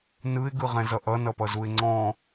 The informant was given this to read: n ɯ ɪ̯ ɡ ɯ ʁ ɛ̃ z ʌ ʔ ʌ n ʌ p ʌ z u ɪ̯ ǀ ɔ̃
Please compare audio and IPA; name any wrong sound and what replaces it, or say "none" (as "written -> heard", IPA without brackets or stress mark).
ǀ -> ŋ͡ǀ